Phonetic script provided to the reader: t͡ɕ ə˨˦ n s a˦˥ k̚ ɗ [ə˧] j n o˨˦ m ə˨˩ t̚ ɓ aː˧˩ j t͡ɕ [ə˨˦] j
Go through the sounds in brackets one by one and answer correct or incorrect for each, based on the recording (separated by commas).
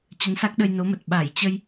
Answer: correct, incorrect